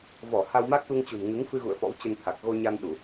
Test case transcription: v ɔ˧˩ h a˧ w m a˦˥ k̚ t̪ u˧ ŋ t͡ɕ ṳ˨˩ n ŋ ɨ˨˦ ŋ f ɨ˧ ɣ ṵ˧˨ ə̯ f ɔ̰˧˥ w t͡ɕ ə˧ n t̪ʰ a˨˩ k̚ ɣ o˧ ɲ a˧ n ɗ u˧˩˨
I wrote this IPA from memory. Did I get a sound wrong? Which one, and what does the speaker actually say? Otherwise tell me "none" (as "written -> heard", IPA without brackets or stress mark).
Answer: none